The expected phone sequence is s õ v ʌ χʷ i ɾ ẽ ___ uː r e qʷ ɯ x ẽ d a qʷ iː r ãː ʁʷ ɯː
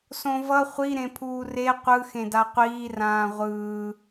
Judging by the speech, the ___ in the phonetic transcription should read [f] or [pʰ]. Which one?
pʰ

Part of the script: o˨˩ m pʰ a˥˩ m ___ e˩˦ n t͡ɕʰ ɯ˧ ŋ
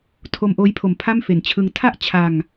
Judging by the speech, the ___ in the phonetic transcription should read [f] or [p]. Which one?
f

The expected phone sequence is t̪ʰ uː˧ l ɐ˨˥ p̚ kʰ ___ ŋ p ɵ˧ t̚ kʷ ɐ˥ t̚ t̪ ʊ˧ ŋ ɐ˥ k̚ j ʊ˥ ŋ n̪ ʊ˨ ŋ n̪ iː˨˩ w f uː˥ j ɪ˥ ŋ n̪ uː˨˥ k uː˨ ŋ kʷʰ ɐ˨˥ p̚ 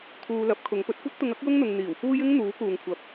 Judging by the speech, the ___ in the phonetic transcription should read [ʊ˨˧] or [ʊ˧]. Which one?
ʊ˨˧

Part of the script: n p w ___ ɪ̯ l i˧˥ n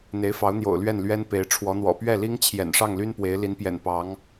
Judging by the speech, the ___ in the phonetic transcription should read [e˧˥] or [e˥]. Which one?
e˧˥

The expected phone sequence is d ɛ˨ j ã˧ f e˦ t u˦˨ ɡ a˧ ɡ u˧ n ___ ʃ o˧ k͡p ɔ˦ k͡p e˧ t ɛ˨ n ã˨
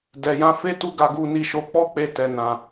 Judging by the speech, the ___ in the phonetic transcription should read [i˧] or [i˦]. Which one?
i˧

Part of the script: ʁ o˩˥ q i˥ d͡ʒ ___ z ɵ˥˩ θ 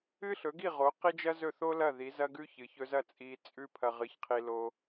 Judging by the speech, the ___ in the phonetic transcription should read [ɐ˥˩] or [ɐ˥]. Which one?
ɐ˥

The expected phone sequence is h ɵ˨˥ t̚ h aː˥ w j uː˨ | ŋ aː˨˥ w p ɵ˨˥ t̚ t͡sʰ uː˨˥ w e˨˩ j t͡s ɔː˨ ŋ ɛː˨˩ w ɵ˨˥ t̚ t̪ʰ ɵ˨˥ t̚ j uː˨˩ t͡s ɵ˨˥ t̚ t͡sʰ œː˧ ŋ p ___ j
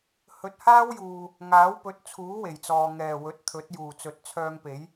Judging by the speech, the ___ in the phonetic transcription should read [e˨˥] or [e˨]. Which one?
e˨˥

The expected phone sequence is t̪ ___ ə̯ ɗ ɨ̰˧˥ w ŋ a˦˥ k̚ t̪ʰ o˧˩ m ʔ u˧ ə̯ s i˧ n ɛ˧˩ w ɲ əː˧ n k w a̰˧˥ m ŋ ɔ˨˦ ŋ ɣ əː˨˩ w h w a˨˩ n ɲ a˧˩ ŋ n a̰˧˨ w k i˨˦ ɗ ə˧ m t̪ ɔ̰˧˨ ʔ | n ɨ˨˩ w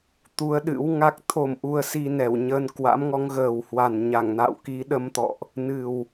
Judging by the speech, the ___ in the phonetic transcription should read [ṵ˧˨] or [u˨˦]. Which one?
u˨˦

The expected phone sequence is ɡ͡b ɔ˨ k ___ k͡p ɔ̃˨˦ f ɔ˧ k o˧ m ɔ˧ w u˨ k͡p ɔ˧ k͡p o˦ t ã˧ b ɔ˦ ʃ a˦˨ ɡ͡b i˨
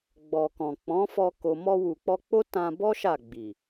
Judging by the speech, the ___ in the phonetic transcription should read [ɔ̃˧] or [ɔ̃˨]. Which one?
ɔ̃˨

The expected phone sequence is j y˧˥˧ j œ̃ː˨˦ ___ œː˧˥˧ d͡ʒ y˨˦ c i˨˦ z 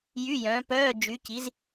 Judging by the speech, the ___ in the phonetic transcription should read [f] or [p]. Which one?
p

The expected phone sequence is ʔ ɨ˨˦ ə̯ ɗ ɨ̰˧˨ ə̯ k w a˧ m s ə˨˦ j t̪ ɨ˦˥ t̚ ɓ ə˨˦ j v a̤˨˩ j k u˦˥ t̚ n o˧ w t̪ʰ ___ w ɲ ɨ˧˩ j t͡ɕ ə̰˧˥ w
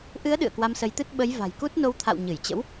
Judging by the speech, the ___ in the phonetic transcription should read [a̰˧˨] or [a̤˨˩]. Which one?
a̰˧˨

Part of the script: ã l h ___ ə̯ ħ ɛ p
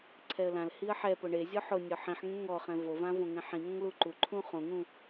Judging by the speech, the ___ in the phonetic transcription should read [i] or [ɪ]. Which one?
i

